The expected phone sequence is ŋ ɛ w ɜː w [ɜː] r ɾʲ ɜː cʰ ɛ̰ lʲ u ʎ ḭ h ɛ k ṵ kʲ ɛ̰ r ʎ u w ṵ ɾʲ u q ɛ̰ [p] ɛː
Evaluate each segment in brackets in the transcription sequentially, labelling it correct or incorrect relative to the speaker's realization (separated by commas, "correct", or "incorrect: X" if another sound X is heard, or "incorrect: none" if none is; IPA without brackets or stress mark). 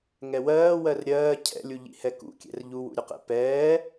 incorrect: ɜ, correct